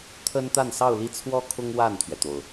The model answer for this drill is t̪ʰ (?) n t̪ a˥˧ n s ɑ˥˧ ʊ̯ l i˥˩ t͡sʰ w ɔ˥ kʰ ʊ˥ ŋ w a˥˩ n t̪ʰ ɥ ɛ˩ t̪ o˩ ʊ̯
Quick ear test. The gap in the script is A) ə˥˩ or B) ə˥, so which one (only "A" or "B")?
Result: B